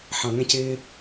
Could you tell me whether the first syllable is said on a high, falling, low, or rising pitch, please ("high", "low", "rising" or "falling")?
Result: low